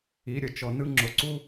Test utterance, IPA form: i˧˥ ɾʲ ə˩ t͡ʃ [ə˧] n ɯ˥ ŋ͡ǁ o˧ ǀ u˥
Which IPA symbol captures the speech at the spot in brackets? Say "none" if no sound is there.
ɔ˧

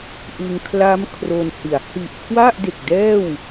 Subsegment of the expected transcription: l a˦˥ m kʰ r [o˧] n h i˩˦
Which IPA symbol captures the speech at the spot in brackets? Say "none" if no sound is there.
o˧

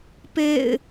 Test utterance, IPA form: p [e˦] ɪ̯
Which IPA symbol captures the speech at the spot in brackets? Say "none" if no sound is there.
ḛ˦˨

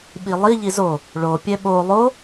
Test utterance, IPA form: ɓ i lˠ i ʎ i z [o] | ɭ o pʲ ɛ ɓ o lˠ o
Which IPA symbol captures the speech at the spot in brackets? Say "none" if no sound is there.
o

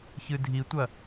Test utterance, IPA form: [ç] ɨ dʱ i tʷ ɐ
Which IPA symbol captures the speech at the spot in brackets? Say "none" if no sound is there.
ç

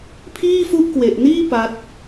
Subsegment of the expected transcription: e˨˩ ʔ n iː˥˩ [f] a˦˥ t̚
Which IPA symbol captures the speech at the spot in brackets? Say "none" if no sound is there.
p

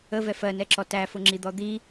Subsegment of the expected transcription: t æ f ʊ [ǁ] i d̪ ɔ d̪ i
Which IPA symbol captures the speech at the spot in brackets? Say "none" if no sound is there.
ŋ͡ǁ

